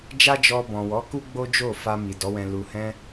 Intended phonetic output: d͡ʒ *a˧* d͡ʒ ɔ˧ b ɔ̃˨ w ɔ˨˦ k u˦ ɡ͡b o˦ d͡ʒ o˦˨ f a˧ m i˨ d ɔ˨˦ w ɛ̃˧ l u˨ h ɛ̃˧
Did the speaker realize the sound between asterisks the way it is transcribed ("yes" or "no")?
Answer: no